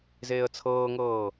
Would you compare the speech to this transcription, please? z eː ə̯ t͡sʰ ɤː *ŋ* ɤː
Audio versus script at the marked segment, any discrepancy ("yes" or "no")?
no